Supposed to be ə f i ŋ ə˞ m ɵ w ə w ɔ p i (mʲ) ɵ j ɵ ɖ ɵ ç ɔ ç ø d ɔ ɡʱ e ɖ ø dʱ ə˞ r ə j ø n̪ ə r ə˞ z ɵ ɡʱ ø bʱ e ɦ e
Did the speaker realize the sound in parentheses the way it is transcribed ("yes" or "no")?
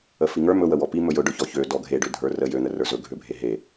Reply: no